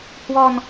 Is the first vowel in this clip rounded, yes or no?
yes